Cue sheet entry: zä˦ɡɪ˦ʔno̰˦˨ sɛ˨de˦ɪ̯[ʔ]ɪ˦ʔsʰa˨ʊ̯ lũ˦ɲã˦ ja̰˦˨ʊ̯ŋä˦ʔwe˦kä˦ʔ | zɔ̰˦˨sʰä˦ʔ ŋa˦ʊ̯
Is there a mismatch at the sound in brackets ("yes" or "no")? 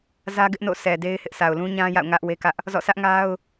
yes